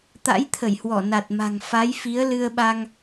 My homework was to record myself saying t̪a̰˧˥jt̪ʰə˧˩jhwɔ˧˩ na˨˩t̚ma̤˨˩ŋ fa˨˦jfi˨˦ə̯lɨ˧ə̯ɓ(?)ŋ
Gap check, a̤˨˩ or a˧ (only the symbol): a˧